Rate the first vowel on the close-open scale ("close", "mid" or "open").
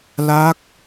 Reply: open